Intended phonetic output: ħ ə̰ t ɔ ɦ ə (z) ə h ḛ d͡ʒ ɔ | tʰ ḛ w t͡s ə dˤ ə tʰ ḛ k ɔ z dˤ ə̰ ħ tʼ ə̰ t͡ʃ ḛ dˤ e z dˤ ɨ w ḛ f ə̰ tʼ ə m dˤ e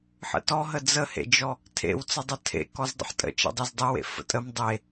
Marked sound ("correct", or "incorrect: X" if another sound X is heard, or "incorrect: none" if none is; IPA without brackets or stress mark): incorrect: d͡z